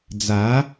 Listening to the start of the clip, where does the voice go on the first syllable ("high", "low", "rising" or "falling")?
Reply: rising